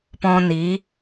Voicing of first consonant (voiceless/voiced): voiceless